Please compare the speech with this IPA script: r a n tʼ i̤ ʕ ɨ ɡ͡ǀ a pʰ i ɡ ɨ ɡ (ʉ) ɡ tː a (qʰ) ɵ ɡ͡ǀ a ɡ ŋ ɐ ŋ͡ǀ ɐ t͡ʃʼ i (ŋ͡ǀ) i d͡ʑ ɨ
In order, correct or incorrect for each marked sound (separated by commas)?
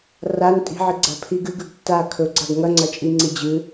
correct, incorrect, correct